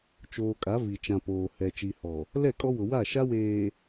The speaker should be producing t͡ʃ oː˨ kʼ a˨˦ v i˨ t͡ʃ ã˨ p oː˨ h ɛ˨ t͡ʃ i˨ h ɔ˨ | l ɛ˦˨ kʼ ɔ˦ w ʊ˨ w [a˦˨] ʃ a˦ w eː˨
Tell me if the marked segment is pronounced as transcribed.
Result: yes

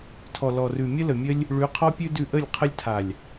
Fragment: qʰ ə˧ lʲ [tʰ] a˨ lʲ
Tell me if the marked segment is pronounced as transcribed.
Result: yes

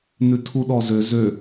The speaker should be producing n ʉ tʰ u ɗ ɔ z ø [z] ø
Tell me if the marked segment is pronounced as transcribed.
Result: yes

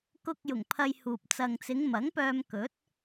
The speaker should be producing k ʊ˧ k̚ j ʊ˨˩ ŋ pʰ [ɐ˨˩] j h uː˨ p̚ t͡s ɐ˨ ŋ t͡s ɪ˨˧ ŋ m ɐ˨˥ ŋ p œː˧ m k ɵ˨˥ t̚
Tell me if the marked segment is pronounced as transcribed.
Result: no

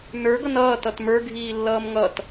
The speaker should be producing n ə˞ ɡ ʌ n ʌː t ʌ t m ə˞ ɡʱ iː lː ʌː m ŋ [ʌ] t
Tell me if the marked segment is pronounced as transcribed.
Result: yes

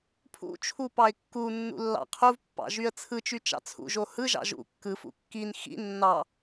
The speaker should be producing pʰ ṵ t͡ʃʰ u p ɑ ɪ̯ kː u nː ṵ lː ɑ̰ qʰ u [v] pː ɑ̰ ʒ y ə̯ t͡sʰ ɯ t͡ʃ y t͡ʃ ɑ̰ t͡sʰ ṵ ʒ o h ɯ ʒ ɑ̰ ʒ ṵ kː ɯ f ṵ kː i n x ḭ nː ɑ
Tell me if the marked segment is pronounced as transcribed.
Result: yes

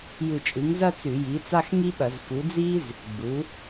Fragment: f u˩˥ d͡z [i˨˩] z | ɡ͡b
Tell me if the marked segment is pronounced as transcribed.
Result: no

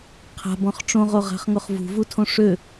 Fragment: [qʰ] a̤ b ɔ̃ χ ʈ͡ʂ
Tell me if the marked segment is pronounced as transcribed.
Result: yes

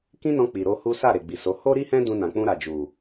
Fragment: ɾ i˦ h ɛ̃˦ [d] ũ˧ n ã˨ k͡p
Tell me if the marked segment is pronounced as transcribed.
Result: yes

